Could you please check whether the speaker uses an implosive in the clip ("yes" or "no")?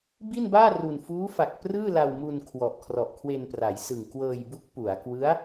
no